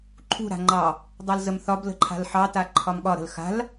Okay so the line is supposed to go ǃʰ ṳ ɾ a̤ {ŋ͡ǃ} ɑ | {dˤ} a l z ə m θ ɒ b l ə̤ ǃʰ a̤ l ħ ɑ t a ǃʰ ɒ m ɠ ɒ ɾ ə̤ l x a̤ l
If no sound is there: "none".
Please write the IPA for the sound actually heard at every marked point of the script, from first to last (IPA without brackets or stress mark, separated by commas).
ŋ͡ǃ, dˤ